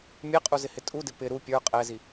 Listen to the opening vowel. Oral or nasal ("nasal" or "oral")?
oral